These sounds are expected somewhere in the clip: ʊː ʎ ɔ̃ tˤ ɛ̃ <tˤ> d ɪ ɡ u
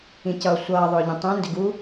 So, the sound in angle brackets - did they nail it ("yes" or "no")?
no